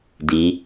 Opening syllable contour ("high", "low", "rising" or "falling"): rising